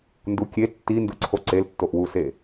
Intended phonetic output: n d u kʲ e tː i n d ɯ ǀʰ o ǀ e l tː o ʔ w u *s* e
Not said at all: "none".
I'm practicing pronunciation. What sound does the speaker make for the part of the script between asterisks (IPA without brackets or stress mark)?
s